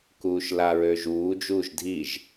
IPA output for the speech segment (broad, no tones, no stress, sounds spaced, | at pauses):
k uː ʃ l a ɹ ø ʒ uː d͡ʒ uː ʒ dʱ i ʒ